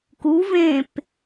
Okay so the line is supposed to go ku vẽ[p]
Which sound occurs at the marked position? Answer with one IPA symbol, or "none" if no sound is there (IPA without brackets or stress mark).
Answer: p